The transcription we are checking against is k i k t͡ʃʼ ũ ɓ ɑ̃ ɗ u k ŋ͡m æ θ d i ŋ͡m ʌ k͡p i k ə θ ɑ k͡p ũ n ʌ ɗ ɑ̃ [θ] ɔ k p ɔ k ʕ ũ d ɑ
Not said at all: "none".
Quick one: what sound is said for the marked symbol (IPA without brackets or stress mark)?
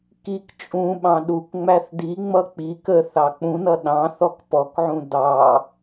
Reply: θ